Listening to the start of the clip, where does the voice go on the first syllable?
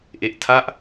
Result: low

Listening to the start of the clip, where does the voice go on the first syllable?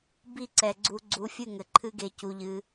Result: falling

